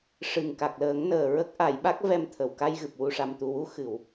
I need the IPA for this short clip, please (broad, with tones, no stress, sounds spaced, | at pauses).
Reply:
ʂ ɨ˨˩ ŋ k a˨˩ k̚ l əː˨˩˦ ŋ n əː˨˩ ɹ ə˦˥ k̚ ʔ a˨˩˦ j ɓ a˦˥ k̚ v ɛ˧ m t̪ʰ ə˨˩˨ w k a˧ j ɣ ɨ˨˩ p̚ w u˨˩ ʂ a˨˩ m t̪ u˨˩ w u˧ x ɨ˨˩˨ w